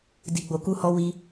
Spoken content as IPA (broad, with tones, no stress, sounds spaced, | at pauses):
d i˨ ɡ͡b o˨ k u˧ h ɔ˧ w i˧